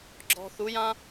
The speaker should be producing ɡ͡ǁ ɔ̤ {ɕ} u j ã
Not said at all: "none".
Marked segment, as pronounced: θ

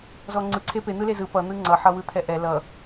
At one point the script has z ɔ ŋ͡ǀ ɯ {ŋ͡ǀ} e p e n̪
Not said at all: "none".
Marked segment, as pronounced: ǀʰ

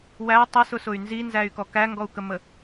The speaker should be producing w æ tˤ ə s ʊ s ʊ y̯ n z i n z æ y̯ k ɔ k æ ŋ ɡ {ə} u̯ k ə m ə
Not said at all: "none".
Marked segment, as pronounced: ɔ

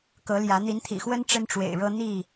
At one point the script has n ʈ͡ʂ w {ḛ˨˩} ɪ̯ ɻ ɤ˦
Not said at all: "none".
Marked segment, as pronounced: ḛ˨˩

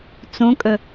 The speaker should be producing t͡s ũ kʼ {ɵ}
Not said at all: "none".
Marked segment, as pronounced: ɵ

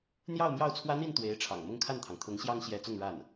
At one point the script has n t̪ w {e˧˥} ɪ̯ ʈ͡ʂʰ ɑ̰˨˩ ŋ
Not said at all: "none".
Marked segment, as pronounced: e˧˥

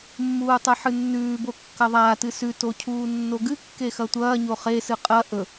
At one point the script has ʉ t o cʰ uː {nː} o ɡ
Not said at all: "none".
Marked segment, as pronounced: nː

